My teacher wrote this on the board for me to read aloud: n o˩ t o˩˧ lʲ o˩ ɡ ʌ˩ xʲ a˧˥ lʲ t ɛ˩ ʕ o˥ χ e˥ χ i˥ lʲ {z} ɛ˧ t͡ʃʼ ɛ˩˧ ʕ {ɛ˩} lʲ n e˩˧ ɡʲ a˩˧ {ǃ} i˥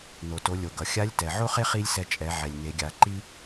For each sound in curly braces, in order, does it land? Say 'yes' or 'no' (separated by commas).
no, yes, yes